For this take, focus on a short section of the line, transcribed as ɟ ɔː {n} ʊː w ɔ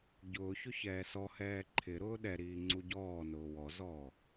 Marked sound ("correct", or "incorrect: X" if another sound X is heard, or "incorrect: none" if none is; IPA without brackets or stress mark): correct